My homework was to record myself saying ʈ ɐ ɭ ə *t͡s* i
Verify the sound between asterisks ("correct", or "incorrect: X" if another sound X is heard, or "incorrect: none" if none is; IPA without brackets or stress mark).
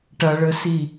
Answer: incorrect: s